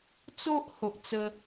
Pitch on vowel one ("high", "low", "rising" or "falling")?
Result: high